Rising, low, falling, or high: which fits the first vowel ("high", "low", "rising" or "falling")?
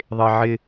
high